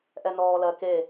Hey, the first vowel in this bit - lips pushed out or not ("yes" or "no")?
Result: no